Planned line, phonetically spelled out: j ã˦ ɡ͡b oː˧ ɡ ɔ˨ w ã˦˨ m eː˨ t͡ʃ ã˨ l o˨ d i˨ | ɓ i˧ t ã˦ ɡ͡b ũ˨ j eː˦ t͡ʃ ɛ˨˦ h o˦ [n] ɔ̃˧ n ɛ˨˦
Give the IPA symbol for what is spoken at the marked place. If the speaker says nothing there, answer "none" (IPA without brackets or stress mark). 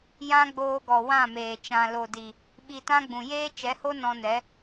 n